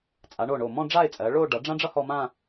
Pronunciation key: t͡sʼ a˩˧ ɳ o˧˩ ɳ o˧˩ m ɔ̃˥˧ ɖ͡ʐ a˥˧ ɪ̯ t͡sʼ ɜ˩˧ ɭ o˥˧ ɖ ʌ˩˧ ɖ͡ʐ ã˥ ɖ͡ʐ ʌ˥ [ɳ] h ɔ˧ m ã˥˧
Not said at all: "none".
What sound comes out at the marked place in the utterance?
none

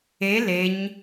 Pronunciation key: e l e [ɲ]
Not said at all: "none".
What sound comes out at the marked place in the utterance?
ɲ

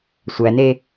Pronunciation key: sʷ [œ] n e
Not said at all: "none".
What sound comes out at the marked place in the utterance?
æ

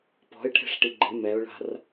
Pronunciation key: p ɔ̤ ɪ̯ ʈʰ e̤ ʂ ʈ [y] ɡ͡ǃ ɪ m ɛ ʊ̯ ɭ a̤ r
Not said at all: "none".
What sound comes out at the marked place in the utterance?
i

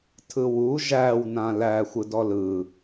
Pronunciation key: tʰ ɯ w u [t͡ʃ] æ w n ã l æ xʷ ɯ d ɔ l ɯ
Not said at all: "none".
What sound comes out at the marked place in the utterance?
ʒ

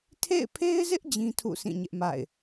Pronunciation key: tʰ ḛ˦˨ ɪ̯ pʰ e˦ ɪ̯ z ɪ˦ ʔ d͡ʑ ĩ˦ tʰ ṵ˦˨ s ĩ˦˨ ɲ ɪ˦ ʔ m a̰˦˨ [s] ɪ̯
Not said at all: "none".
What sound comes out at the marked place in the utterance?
none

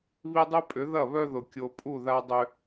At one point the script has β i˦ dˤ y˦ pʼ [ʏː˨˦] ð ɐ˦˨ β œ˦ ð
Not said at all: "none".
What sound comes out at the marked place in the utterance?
ʏ˨˦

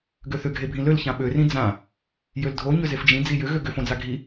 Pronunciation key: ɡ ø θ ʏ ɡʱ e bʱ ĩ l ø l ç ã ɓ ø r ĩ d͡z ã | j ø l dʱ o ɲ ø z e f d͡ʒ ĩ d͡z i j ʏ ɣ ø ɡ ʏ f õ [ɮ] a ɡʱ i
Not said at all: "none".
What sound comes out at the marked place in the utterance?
d͡z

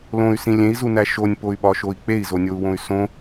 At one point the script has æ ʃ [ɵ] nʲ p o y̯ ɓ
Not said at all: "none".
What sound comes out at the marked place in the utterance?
o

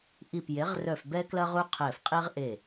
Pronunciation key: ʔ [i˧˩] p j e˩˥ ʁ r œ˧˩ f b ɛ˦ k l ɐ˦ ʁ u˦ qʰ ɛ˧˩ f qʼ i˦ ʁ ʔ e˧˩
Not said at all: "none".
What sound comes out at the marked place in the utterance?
i˧˩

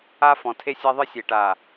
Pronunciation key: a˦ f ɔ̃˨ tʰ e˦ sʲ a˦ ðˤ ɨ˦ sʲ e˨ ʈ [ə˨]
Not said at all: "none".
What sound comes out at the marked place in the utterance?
a˨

